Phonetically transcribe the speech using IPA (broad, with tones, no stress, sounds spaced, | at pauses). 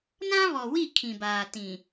n ã˦ β ɔ˨ w i˦˨ kʰ ĩ˨ b aː˨ t ĩ˨